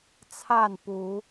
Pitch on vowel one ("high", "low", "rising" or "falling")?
falling